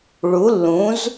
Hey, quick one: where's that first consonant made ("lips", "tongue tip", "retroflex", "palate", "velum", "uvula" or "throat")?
retroflex